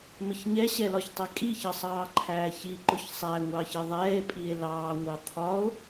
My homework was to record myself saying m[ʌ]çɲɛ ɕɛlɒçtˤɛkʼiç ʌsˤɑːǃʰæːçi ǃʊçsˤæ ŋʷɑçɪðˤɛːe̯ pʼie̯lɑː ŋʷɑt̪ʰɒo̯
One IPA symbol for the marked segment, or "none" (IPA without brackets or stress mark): ə